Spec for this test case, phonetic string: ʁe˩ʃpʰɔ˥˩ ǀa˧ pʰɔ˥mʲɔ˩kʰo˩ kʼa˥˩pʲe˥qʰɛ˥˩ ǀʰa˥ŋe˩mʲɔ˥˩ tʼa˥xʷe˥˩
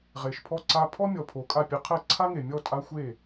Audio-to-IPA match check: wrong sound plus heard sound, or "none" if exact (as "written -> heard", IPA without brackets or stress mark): kʰ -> pʰ